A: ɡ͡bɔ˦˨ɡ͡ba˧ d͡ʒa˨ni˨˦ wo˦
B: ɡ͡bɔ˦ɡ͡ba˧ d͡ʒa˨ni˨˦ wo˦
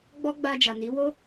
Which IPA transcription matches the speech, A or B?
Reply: B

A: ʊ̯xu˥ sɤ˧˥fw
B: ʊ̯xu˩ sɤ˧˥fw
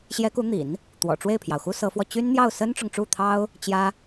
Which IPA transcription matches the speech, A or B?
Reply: A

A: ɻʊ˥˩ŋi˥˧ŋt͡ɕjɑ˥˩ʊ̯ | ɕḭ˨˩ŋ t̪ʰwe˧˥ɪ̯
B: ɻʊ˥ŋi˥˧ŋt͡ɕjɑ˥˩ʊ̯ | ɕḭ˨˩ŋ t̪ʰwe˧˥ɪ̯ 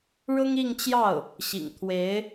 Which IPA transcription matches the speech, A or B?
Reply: B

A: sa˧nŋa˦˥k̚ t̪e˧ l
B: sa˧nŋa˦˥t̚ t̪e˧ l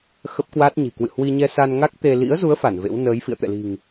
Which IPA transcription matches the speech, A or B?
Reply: A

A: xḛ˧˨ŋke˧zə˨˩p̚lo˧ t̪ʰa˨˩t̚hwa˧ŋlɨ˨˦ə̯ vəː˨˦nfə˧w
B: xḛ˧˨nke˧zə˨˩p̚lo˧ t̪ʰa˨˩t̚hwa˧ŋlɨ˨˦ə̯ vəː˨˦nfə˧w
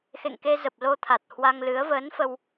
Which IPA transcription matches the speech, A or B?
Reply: A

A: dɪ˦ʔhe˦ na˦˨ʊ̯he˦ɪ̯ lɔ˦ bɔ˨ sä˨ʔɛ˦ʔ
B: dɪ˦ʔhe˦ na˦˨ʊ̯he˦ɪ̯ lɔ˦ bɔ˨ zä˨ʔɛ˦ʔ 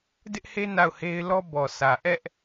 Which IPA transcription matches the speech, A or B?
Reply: A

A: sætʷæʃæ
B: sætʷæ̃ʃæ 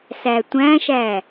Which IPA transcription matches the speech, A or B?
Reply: B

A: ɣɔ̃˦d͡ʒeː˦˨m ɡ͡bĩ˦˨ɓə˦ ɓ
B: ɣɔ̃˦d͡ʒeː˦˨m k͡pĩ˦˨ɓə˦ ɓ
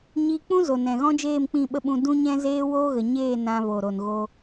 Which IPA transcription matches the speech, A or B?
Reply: B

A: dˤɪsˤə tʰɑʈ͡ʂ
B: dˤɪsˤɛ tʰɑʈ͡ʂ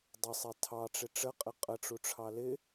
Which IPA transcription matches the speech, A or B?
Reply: B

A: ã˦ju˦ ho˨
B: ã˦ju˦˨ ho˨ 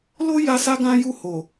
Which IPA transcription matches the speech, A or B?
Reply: B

